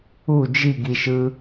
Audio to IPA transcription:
u d͡ʒiɡiʃɯ

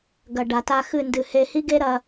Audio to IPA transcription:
ɡɐ˨ ɖa˨ta˧xɨ˦˨ndɨ˨˦ he˧hi˦ɡe˦ɾɐ˧

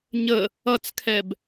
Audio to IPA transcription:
ɲə | ʌt͡skʰɛb

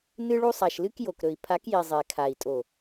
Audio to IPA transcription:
nɨ˦ɭu˦ sˤa˨ʃlɨ˦k jo˨kɾɵ˨i̯ pʰa˨˦kji˨ zˤe˨kʰa˨i̯tʼo˨

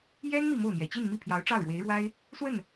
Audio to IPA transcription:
jɛ˥n mi˥˧mo˥˩ʊ̯n̪jɛ˨˩ t͡ɕi˥˧nmi˥˩pʰjɑ˧˥ʊ̯ ʈ͡ʂɑ˥˩ʊ̯ɻwe˧˥ɪ̯ɻwa˥ɪ̯ | swə˥˩n

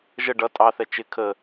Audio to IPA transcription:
ʒə ɖʌ tʼɑθɛ t͡ʃɪ kʰə

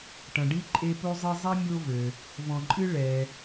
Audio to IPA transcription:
ʈɐ̃˩ɖi˥ǃʼe˦po˥ zˤɨ˦zˤi˥ mʲo˥vɘ˩ | vɔ̃˨ǃʼɨ˥ ɭɛ˩

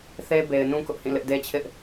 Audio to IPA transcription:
θe˦ be˨ɪ̯nũ˦ kʊ˦ʔhĩ˦˨lɪ˦ʔ de˦t͡ɕʰɪ˦ʔ

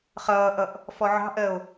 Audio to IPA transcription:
χʌːʔʌʔ | fɔʕɑ̤ʔɜo̯

